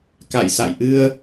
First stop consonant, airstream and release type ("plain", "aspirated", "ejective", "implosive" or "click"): plain